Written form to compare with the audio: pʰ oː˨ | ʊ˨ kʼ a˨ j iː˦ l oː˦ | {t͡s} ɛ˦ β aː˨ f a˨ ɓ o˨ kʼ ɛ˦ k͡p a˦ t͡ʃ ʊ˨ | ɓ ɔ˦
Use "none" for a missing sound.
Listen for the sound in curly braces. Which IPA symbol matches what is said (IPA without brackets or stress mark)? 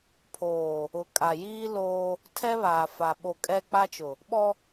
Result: tʰ